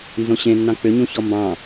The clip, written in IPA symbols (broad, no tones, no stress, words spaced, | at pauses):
nzõɕẽnːɑ̃ k͡pʏɲũ çɔmbɑ̃